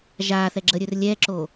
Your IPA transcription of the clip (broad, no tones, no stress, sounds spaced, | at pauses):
ʒ aː θ ɛ ɡ͡ǁ ə ɾʲ ɵ r lʲ ɛ ǁ o